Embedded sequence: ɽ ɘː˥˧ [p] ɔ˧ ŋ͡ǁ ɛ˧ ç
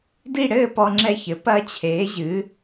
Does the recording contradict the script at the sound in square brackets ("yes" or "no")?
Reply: no